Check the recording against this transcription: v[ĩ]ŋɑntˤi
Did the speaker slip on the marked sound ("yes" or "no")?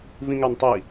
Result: no